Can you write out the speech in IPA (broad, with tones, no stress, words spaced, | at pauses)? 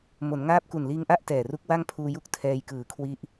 mo˩˦nŋaː˥˩p̚ ku˨˩nliː˧ŋʔa˥˩ʔ tɛː˨˩ru˦˥k̚ wa˥˩ŋpʰuː˧ju˥˩k̚ tʰɛː˧jkɯː˨˩kʰwi˦˥ʔ